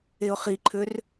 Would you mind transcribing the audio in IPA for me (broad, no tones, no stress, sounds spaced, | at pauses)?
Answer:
e ʊ̯ χ i ǃʰ ø r